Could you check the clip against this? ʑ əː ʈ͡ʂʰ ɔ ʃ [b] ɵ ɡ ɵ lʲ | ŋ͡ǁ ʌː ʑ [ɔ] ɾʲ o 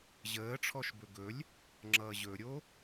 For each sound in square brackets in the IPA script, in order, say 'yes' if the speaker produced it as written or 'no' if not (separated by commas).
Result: yes, no